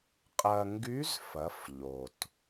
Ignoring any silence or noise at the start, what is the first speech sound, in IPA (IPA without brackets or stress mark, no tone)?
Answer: qʼ